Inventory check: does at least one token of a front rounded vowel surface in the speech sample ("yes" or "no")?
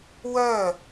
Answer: yes